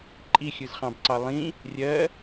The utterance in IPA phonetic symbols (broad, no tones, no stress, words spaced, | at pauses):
ǃʼixʲɯz χɑ̃bǀɑlˠĩ | rʲɜ